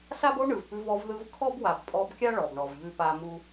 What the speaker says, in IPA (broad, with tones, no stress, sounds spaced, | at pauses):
s a˦ b o˦ ɳ ɯ˨ v p ʉ˧ v ɔ˧ v ð ɯ˧ v kʰ ɔ˦ b w a˨ b pʼ ɔ˧ b kʲ a˦ ɭ ɔ˨ b ɳ ɔ˨ v ʎ ʉ˦ p a˦ m u˦